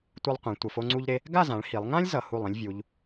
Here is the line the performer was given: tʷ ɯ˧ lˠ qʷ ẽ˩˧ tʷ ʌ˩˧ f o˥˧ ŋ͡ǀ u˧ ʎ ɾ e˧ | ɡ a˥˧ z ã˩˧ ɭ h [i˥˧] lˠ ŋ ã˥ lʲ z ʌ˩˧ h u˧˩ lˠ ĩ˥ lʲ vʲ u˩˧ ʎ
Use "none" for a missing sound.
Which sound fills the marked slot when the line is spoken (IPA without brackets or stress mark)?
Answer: i˩˧